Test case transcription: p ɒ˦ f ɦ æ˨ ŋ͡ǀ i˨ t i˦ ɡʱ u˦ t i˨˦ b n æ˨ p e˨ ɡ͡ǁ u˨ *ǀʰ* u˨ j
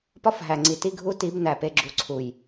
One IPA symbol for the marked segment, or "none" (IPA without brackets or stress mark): ǀʰ